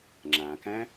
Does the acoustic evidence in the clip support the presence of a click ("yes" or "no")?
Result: yes